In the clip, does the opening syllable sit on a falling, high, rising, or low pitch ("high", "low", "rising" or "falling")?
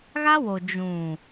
high